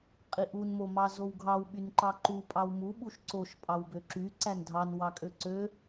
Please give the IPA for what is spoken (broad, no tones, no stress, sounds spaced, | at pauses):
qʼ i ʔ u n m o m ɑ z o w ɡʱ ɑ w ɓ y n ǃ ɑ ǃ u pʼ ɑ w m u ɓ u ʃ ǀ o ʃ pʼ ɑ w b ø ǁ y ǀ æ n dʱ ɑ n w ɑ kʼ ø ǀ ø